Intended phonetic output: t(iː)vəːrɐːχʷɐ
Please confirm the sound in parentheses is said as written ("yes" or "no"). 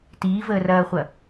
yes